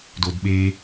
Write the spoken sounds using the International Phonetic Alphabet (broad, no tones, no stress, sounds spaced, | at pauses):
d o d ɓ e